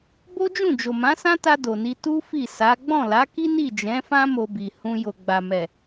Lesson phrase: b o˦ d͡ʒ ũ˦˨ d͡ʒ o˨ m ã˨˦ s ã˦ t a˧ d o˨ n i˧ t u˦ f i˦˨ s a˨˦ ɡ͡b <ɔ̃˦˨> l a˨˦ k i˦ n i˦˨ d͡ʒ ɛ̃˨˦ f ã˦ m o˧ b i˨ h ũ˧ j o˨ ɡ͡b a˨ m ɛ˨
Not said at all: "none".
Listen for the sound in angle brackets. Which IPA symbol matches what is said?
ɔ̃˦˨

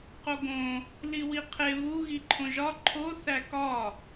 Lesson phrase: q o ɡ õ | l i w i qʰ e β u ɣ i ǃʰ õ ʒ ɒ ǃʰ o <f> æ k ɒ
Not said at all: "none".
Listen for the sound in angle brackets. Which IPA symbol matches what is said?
θ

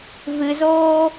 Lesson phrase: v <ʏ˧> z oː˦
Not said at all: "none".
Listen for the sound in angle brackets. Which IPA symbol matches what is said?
ɨ˧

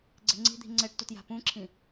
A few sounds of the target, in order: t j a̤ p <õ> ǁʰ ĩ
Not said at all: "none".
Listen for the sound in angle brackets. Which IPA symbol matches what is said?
ũ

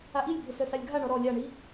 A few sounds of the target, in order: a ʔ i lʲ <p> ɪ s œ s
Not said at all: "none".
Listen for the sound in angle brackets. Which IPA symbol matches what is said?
bʱ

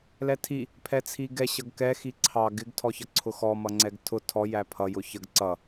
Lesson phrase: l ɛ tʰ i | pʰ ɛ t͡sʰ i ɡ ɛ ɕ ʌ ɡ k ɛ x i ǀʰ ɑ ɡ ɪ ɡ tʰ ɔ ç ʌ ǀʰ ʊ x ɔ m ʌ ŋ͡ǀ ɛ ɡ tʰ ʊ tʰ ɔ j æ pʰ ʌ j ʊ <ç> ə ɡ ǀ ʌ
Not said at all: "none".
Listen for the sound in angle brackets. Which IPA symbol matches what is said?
ç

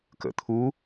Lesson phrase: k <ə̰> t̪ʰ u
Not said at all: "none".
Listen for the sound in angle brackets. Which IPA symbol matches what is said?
ə̰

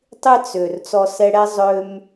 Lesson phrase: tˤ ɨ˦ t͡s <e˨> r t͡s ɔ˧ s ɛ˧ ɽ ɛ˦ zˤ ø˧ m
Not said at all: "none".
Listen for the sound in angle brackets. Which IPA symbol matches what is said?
ø˨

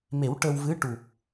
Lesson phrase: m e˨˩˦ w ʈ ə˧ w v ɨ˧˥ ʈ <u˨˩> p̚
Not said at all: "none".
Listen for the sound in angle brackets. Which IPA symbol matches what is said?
u˨˩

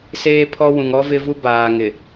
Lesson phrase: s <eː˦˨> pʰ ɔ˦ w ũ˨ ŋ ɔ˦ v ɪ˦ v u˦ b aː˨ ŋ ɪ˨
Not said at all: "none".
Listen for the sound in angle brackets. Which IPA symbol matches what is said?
eː˦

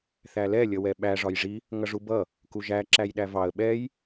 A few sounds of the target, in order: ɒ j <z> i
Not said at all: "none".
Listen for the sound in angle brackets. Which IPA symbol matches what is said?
ʐ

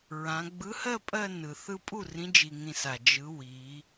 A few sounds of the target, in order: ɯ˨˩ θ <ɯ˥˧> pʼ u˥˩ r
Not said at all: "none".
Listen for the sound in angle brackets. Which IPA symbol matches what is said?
ɯ˥˧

